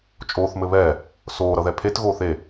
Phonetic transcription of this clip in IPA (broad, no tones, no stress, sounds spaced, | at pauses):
t͡ʃʼ oː θ m ɘ β ɛː | s oː ɾ ʌ ð ɛ pʰ e t ɣ oː θ e